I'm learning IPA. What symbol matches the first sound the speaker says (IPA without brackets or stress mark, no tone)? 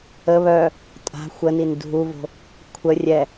ə